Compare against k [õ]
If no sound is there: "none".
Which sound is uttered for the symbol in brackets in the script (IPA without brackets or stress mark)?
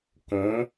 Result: õ